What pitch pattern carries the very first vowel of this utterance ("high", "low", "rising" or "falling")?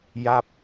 falling